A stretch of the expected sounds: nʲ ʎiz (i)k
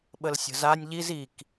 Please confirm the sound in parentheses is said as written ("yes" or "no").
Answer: yes